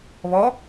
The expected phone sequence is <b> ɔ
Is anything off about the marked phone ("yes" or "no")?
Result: yes